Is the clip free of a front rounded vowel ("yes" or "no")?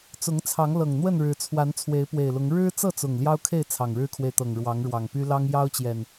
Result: no